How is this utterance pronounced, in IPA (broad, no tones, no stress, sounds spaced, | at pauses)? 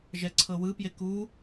ʒ ɛ ǀʰ ɤ w ɯ p j e k u